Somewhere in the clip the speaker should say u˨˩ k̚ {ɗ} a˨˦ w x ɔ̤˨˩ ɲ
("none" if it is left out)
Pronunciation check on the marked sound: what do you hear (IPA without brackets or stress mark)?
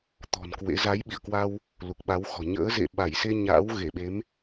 ɓ